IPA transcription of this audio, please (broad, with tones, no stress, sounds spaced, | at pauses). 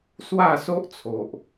s w a˥˧ s o˦ ʔ t͡sʰ o˨ ʔ